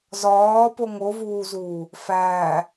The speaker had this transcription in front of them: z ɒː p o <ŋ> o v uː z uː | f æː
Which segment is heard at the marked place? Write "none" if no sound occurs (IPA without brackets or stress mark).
ŋ